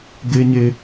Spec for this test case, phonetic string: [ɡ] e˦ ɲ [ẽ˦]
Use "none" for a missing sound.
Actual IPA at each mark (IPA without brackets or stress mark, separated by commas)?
ɡ, e˦